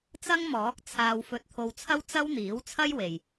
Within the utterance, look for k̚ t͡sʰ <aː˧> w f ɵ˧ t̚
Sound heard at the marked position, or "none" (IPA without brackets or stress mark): aː˧